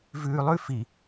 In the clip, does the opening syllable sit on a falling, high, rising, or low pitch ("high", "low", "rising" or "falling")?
low